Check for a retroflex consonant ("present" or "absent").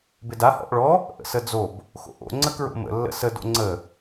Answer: present